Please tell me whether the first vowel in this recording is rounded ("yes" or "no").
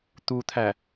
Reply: yes